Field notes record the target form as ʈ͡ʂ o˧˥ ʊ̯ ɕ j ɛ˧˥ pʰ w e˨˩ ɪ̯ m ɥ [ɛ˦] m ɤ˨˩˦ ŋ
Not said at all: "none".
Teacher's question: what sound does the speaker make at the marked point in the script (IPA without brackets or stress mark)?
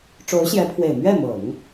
ɛ˥˩